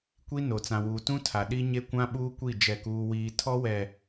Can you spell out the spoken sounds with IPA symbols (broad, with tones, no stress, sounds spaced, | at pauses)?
kʷ i˦ n o˨ t͡s ã˨ w uː˨ t ũ˦ tʰ a˨ ɗ i˦ ɲ e˦ kʷ ã˦ ɓ uː˦ kʷ i˦˨ d͡ʒ ɛ˦˨ k uː˦ w iː˦ tʰ ɔ˦ w ɛ˨